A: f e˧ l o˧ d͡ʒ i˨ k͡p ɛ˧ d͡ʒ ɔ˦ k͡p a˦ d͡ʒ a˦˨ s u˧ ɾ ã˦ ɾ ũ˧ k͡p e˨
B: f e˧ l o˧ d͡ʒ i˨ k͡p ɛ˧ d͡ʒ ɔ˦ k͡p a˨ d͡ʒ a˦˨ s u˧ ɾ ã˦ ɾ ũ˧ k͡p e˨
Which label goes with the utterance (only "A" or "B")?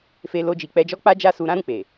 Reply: A